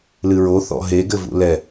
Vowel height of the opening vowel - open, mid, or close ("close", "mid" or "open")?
close